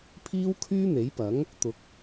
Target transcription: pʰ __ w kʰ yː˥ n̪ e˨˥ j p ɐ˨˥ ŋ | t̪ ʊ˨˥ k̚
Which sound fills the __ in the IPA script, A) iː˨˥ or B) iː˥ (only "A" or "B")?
B